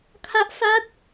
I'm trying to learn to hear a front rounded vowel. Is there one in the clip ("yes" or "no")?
no